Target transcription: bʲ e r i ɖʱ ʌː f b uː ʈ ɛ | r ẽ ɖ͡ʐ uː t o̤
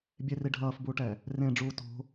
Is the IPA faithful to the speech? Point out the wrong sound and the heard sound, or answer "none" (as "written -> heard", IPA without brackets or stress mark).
none